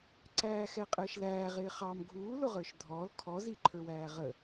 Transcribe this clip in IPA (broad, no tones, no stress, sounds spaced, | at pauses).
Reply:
ǀ æː x ɛ qʼ əː ʃ l æː ʁ ɪː χ ɑ m ɡʱ uː l ʊ ʁ ə˞ ʃ dʱ ɔː l kʰ ɔ z i ǃʰ ə˞ w æː ʁ ə